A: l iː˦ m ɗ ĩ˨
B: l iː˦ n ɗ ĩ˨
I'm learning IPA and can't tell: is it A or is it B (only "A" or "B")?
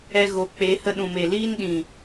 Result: B